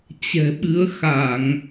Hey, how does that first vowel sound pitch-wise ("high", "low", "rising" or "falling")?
low